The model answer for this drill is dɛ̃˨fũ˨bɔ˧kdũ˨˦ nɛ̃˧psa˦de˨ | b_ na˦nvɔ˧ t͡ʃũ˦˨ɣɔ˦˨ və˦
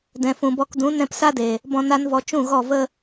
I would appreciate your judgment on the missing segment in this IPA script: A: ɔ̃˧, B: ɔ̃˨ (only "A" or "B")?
A